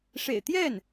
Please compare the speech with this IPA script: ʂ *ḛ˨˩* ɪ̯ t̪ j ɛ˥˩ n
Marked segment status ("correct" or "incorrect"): correct